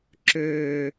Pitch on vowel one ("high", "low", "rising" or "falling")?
low